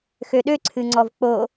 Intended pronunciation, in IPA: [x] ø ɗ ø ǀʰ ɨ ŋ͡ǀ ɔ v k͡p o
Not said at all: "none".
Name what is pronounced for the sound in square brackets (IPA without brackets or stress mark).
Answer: x